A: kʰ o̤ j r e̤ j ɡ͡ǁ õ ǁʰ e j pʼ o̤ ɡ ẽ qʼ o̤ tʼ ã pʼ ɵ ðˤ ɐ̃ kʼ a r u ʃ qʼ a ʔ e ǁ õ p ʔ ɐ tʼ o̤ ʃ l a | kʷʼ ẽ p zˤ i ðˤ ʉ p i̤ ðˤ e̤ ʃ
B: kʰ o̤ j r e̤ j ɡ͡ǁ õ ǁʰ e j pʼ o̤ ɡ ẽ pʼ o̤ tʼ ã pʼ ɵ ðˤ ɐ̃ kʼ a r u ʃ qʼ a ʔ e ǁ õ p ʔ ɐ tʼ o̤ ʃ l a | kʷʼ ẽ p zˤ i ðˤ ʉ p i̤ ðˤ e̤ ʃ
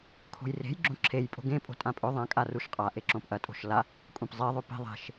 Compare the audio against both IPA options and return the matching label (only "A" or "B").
B